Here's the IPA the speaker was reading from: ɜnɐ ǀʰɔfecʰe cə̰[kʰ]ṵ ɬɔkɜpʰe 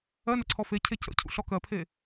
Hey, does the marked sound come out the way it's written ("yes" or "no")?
no